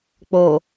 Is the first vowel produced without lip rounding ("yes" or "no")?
no